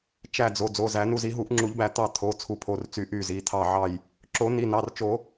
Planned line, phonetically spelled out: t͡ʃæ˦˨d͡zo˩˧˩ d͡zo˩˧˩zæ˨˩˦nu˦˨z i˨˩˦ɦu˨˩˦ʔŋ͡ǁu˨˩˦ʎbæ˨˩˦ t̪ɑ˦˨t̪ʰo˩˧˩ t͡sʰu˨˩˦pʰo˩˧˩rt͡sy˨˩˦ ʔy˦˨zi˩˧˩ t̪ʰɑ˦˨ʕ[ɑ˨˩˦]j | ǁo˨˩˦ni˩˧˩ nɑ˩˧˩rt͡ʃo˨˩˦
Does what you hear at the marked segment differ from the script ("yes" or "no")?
yes